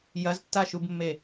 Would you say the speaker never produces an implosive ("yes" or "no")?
yes